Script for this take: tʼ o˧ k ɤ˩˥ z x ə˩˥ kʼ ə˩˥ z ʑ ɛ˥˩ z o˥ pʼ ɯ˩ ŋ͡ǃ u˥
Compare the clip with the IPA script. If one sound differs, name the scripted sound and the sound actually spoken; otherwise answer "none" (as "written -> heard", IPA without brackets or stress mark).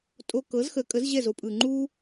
none